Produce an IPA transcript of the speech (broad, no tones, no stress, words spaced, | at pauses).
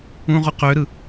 ũʁu qøɾɯ